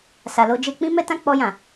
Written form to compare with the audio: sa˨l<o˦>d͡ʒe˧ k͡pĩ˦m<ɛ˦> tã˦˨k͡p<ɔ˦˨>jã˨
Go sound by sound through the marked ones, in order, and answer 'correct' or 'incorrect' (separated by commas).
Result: incorrect, correct, incorrect